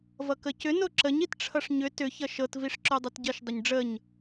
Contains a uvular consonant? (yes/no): no